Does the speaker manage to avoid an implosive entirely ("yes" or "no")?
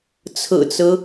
yes